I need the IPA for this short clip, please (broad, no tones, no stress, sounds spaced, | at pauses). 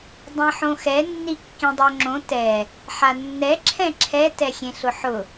dˤ ẽ ħ õ x ɛ nː i kː ĩ dˤ o ŋ͡ǁ õ t ɛ | ħ a nː ɛ ǁʰ ɛ̃ ǁʰ ɛ t ɛ xʲ ẽ ɬ ʊ ħ ʊ